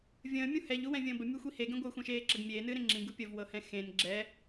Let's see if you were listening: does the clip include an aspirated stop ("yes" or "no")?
no